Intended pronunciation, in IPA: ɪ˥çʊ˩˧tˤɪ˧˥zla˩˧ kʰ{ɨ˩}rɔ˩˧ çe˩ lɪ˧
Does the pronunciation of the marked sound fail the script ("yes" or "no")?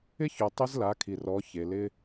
yes